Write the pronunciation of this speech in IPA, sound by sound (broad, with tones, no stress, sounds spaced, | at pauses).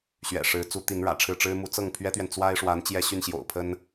ɕ ɥ ɛ̰˨˩ ʂ ɻ̩˧˥ t͡s u˧˥ t̪ i˧˥ n ɻ ä̰˨˩ ʈ͡ʂʰ ɻ̩˥˩ ʈ͡ʂ ɻ̩˥ m u˧˥ t͡s ɤ˥˩ ŋ pʰ ɥ ɛ˥ t̪ ɥ ɛ˨ n t͡s w a˥ ɪ̯ ʂ w a˧˥ n t͡ɕ j ɛ˥ ɕ y˥˩ n ɕ j o̰˨˩ ʊ̯ pʰ ə˥ n